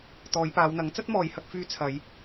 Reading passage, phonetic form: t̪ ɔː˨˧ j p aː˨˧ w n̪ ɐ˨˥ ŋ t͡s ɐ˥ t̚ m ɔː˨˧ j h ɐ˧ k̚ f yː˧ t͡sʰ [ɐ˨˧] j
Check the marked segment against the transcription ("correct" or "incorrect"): correct